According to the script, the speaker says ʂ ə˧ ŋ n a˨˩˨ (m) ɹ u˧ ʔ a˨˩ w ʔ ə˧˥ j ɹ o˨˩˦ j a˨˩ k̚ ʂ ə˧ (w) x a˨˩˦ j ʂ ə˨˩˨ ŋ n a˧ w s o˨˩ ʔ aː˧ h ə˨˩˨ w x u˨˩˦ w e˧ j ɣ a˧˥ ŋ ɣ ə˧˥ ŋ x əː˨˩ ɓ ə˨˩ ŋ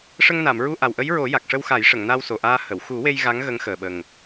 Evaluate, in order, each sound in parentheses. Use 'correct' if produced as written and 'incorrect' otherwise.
correct, correct

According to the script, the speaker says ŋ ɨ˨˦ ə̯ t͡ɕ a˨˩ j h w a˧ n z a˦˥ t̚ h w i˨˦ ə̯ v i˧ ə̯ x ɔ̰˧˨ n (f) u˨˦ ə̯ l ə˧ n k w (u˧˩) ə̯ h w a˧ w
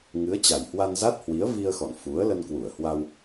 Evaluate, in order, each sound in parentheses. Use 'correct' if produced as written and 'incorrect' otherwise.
correct, correct

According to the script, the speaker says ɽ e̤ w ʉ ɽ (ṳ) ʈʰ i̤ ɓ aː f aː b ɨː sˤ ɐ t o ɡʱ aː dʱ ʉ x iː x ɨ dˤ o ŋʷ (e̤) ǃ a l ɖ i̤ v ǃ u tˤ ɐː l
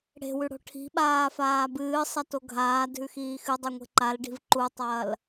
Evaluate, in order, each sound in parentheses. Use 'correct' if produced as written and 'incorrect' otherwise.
incorrect, correct

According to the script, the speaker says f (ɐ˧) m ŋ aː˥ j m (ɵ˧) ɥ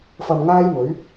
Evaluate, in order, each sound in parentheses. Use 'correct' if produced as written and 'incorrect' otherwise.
correct, incorrect

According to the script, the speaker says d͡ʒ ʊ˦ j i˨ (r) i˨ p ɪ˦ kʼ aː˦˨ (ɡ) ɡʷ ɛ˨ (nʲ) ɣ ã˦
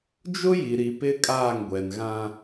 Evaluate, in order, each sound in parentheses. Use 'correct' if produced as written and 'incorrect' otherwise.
incorrect, incorrect, incorrect

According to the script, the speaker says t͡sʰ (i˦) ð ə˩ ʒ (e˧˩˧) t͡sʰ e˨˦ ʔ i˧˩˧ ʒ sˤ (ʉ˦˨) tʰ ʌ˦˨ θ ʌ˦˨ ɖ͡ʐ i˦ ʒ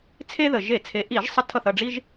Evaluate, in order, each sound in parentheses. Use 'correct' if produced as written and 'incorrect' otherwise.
incorrect, correct, incorrect

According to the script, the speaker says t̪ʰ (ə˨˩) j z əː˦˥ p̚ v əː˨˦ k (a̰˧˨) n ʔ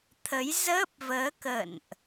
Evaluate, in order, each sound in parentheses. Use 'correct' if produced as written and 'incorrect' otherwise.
incorrect, incorrect

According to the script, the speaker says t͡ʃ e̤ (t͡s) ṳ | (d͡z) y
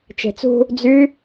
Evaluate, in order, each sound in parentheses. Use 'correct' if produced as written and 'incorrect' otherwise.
correct, correct

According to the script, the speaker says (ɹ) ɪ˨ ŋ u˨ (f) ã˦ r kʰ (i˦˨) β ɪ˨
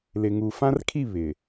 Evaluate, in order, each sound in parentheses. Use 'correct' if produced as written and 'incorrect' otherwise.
incorrect, correct, correct

